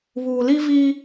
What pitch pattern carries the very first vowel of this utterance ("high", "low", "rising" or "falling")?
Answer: low